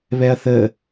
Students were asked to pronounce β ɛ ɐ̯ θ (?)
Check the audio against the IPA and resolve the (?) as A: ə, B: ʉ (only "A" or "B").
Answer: A